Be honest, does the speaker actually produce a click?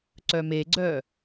yes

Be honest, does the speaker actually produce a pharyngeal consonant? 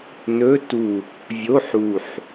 yes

